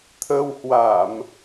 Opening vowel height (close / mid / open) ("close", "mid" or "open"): mid